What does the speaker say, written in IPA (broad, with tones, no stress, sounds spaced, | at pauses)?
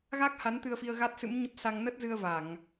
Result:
ɣ a˦˥ k̚ h a˨˦ n t̪ ɨ˧ ə̯ f i˧ ə̯ ɣ a˦˥ t̚ s ɨ̰˧˥ m ɲ ə˦˥ p̚ s a˧ ŋ n ə˦˥ t̚ z ɨ˧ ə̯ v a˧˩˨ ŋ